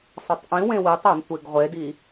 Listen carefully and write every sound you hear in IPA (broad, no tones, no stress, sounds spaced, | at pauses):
sˤ a tˤ ʔ ĩ w ẽ w i tˤ a n tʷ e ɡ ʁʷ e d i